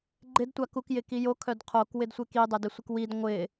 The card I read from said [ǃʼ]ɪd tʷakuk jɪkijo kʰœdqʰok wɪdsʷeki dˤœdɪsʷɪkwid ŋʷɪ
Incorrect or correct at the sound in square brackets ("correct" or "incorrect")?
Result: incorrect